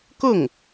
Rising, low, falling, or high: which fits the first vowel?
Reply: falling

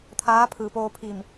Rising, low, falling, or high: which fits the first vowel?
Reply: rising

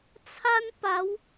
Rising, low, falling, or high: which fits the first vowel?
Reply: high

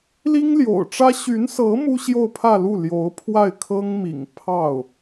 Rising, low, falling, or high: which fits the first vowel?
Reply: high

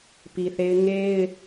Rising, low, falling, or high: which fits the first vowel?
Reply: low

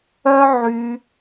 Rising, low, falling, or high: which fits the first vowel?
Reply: high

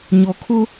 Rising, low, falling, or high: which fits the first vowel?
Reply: low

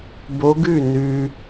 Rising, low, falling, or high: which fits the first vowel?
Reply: rising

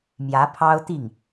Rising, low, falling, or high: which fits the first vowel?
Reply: rising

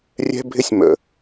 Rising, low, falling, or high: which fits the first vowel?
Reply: high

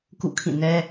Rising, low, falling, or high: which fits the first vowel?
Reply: falling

